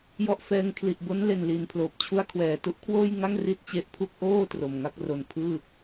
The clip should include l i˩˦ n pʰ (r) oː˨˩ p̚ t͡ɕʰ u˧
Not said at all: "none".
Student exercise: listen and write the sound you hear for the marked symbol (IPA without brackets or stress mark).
l